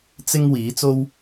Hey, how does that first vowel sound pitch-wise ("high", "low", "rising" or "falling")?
high